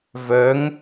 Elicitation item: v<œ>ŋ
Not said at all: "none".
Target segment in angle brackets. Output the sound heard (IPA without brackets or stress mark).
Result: œ